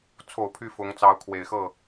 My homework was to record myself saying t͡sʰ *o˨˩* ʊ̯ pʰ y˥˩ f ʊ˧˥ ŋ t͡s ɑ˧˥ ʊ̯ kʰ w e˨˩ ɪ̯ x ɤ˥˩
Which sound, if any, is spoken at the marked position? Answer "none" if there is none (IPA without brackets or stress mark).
o˨˩